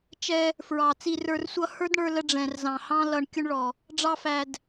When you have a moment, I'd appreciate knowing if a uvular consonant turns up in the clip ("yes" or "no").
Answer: no